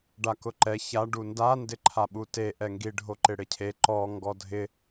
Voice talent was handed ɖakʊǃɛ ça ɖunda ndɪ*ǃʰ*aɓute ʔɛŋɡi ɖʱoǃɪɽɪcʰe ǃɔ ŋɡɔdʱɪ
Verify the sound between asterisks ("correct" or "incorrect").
correct